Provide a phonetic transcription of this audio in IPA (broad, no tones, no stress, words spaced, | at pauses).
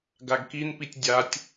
ɡaɡkinpitʲ dʲatʲ